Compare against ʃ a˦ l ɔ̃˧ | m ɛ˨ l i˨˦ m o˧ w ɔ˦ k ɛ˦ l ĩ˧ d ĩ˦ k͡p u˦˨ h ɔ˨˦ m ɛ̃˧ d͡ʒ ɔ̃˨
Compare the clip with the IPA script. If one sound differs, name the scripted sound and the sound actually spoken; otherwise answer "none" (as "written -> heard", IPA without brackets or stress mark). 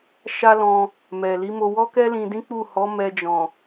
ɛ̃˧ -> ɛ˧